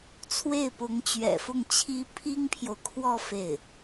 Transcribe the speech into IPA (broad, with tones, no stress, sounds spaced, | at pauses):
t͡sʰ w e˥˩ ɪ̯ p ʊ˧˥ ŋ t͡ɕ ɥ ɛ̰˨˩ f ʊ˥˩ ŋ t͡ɕʰ i˥ pʰ i˥ ŋ pʰ j o˨ ʊ̯ kʰ w ɔ˥˧ f e˥˩ ɪ̯